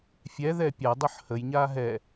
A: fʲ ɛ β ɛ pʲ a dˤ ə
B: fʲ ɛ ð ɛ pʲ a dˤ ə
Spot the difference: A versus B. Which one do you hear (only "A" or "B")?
B